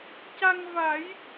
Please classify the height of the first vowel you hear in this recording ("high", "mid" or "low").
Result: low